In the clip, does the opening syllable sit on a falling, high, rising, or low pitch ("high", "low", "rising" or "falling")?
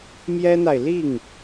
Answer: high